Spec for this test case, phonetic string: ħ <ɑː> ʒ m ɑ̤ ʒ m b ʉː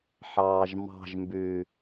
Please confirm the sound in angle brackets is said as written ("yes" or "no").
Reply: yes